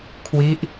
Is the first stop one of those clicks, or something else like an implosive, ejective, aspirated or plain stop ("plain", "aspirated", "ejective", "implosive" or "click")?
aspirated